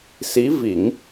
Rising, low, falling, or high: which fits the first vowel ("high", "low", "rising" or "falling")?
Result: rising